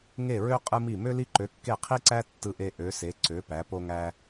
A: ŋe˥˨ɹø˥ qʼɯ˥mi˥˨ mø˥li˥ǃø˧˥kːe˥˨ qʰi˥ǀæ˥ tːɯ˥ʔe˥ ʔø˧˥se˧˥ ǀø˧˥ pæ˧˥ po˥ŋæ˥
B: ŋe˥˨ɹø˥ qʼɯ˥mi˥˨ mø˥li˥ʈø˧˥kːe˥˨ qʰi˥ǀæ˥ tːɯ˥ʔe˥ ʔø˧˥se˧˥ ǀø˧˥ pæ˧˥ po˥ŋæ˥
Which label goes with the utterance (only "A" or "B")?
A